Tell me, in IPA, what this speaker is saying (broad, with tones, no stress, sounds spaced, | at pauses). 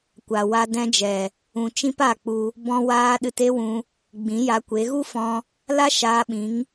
kʷ a˨ w a˧ d ɛ̃˧ d͡ʒ ɛ˨ | ũ˨ t͡ʃ ĩ˦ p a˦˨ k͡p u˧ | b ɔ̃˧ w aː˧ ɗ ɨ˧ t e˦ w ũ˧ | ɡ͡b ĩ˨˦ j a˧ kʷ e˨˦ ɣ u˦ f ɔ̃˧ | l a˦ ʃ aː˧ ɓ ĩ˨˦ ŋ